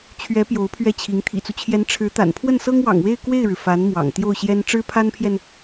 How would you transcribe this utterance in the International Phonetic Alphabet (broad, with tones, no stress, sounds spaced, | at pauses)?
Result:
t͡ɕʰ ɥ ɛ˧˥ p j o˧˥ ʊ̯ pʰ ɥ ɛ˥˩ t͡ɕʰ i˧˥ ŋ t̪ʰ ḭ˨˩ t͡s u˦ t͡ɕʰ j ɛ˧˥ n ʈ͡ʂʰ ɻ̩˧˥ t̪ a̰˨˩ n pʰ w ə˥˩ n s ɤ˥ ŋ w ɑ̰˨˩ ŋ w e˥˧ ɪ̯ k w e˥˩ ɪ̯ ɻ ɻ̩˩ f a˧˥ n m w ɑ̰˨˩ ŋ t̪ j o˥˩ ʊ̯ ɕ j ɛ˥ n ʈ͡ʂ ɻ̩˥ pʰ a˥ n pʰ j ɛ˨ n